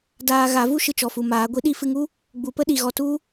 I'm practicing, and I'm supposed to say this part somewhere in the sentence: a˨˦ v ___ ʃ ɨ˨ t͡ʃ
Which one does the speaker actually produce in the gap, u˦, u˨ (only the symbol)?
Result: u˦